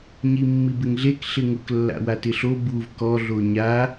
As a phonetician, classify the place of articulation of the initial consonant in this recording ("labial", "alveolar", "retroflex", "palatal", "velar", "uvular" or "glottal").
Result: palatal